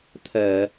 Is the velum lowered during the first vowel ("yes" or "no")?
no